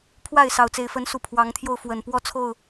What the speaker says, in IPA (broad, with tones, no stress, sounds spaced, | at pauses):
pʰ w a˥˨ ɪ̯ s ɑ˥˨ ʊ̯ t͡s e˦ ɪ̯ f ə˨˦ n s u˨˩ pʰ w ɑ˨˦ ŋ t̪ʰ j o˧ ʊ̯ f w ə˨˩ n p w ɔ˥˨ t͡sʰ o˥˨ ʊ̯